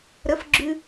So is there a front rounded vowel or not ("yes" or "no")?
no